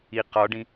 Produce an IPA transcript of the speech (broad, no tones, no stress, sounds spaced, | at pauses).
i q ɒ ɖ ĩ